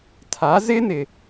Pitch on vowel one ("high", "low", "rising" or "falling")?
rising